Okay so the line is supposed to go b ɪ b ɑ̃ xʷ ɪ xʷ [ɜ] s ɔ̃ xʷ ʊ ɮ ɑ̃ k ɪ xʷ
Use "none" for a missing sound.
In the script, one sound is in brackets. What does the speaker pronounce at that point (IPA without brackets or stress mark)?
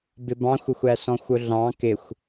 æ